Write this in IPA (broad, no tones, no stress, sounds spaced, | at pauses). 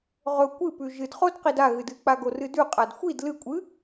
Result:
ʁ ɵ kʷ ɨ p ʉ ʒ ɨ d χ o d q i d a ɣ ɨ d ɨ k͡p a ɡ o r ɨ d ʉ qʼ a d xʷ i d l ɨ kʷʼ ɨ